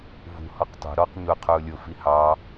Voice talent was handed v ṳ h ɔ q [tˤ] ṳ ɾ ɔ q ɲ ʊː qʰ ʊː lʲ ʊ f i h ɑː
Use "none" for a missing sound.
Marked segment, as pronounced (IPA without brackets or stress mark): tˤ